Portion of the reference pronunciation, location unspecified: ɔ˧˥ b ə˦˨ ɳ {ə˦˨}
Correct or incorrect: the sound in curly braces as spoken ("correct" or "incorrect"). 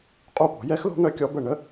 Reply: incorrect